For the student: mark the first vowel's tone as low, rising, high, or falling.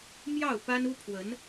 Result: falling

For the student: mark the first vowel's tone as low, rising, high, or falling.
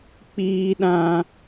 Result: low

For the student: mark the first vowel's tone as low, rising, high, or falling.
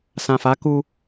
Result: low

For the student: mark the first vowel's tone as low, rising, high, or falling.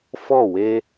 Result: falling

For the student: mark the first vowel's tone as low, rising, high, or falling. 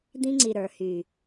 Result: high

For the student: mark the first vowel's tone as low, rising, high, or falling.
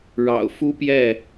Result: low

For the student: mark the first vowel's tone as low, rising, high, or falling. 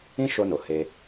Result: high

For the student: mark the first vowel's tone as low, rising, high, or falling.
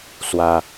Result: high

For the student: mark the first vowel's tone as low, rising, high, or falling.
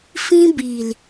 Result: high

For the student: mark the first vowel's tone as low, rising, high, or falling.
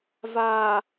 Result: low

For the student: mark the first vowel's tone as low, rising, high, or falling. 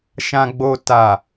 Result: low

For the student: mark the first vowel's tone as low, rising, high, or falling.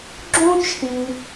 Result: high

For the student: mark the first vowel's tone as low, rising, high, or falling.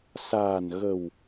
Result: low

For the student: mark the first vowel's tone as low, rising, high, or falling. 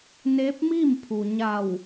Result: rising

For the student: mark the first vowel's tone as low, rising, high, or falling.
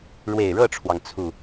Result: low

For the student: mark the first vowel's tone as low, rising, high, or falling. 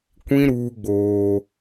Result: high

